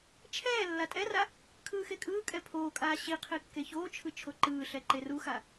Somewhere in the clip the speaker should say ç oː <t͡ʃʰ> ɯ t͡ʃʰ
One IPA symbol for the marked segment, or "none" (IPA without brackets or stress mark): t͡ʃʰ